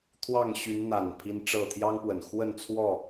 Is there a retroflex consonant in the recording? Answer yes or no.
yes